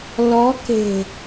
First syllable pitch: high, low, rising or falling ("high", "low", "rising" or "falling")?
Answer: rising